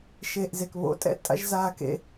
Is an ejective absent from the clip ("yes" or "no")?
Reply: no